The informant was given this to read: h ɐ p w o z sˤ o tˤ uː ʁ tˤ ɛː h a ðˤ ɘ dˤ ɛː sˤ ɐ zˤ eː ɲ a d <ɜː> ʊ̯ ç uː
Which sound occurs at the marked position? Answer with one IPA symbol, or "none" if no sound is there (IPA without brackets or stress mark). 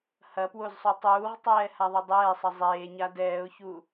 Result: ɛː